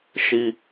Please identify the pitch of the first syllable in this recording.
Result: low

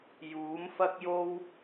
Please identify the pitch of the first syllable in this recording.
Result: rising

